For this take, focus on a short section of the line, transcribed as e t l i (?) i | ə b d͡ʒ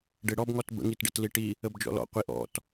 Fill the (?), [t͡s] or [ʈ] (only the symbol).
ʈ